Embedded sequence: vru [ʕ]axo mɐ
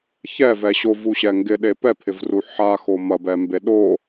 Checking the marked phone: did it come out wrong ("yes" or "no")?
yes